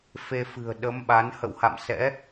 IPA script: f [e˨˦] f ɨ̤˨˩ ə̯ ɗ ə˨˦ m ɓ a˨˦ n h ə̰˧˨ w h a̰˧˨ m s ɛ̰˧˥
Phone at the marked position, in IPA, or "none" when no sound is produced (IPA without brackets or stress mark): e˧